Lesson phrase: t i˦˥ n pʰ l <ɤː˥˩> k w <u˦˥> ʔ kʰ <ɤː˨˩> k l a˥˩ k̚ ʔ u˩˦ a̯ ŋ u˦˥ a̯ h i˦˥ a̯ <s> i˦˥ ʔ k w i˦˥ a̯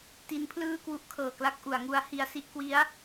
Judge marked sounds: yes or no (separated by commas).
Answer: no, yes, yes, yes